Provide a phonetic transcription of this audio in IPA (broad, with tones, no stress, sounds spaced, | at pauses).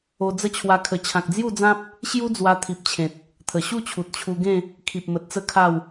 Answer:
o˧ d͡z ə˥˧ t͡ɕʰ w a˧ kʰ ə˨˩ t͡ɕʰ ã˨ k̚ d͡z j u˥˧ d͡z ã˦ p̚ | ɕ j u˦ d͡z w a˧ t̪ʰ i˨ p̚ t͡ɕʰ ẽ˨ t̚ | t̪ʰ ə˨˩ ɕ u˥˧ t͡ɕʰ u˨ t̚ t͡ɕʰ u˧ ɡ ẽ˥˧ | kʰ i˨ p̚ m ə˨ t̚ t͡s ə˥˧ kʰ a˥˧ w